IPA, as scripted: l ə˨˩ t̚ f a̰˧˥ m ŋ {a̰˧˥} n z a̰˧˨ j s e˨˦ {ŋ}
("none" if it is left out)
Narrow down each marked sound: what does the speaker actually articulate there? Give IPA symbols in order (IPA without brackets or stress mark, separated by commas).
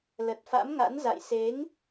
a̰˧˥, ŋ